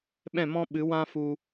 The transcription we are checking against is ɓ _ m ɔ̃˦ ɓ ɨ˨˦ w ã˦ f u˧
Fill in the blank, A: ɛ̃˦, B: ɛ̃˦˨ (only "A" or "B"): B